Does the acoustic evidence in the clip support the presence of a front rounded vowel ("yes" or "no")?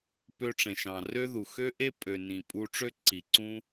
yes